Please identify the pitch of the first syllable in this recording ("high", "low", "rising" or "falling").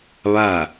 falling